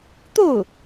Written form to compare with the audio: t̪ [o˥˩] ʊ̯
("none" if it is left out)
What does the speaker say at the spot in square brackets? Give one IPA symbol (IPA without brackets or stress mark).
o˥˩